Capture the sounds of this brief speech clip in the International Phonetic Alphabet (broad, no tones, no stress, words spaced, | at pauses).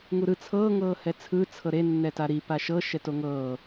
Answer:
ŋuɾɯ t͡sʰɤː ŋɤːhɛt͡sʰɯ t͡sʰɤɾe nːɛtaɾi paʃɤ ʃɛtoŋɤː